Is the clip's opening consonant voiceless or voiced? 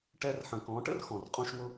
voiceless